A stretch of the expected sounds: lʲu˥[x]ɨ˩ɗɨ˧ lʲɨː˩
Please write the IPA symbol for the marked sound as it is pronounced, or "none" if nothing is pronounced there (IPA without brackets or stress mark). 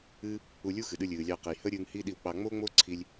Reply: x